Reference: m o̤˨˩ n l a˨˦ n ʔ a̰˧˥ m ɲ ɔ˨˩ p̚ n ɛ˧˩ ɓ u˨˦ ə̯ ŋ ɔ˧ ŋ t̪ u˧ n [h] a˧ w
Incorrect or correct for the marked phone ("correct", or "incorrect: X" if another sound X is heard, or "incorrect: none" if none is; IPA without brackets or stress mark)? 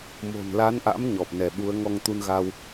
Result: incorrect: ɣ